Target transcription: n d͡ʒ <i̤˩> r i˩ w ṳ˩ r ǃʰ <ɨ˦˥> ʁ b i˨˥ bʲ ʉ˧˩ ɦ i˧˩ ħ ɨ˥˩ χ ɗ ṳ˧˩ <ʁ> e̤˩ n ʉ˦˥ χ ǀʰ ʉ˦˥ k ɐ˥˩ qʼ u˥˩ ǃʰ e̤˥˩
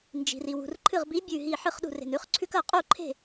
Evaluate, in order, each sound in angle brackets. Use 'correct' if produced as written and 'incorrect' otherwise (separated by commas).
correct, incorrect, incorrect